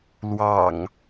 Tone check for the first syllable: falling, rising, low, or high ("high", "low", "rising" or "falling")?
low